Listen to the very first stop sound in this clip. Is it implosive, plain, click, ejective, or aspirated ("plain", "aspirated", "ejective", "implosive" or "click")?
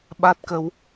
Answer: implosive